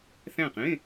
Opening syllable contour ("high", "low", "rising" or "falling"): falling